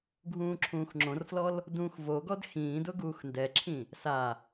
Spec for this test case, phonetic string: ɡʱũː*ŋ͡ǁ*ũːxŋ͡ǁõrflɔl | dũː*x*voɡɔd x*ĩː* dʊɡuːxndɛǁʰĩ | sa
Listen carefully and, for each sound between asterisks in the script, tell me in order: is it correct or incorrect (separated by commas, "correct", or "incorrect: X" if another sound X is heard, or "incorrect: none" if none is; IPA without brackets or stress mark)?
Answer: incorrect: ǁʰ, correct, correct